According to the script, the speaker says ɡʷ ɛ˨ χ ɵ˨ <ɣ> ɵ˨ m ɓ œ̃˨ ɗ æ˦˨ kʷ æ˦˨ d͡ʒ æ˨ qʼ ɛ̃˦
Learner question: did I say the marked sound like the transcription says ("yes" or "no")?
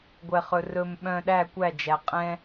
no